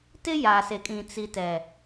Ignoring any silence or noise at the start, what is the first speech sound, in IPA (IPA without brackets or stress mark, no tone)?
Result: t